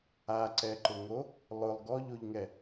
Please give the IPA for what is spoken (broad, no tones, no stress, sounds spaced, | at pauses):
a ǀ ɛ ǃ ʊ ŋ o | lˠ ʊ lˠ ɡ ɔ ʎ o ʎ ŋ ɛ